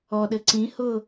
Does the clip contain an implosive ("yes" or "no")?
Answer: yes